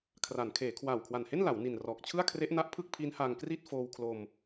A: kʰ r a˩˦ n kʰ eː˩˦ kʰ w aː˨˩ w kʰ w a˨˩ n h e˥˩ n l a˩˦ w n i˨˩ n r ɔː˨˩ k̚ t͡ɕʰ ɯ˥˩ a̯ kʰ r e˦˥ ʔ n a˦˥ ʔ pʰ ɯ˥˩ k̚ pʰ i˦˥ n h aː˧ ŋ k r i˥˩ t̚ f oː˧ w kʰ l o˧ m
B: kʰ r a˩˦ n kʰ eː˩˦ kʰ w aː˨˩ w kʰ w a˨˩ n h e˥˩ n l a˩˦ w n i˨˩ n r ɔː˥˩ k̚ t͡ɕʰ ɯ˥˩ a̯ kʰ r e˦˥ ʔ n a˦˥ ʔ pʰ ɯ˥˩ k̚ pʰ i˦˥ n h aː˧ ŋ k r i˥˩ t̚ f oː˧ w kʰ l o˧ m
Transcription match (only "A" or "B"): A